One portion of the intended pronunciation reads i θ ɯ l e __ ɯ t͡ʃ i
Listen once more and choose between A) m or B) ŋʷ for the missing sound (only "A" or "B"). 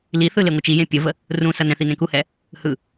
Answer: B